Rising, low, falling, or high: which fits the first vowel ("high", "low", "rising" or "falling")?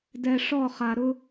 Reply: low